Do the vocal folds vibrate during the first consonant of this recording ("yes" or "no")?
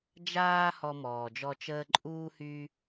yes